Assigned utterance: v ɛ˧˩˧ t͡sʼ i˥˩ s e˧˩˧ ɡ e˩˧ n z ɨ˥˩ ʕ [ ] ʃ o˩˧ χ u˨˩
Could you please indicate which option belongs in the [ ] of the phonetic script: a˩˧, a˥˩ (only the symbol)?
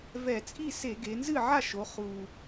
a˥˩